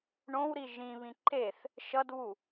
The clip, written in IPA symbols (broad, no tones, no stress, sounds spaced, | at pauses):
ɳ õ w ɾ i ʒ ĩ β ĩ ǃ e θ | ʃ ʌ d β u